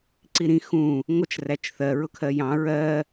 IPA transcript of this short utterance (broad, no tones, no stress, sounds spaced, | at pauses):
ǀ i ɾ ĩ x ũ | ŋʷ ʌ t͡ʃ r æ t͡ʃ θ ɜ ɹ ʊ kʰ ɜ j ɑ̃ ɹ ɜ